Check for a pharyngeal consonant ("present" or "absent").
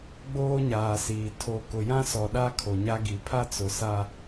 absent